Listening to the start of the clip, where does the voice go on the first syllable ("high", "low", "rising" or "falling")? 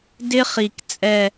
high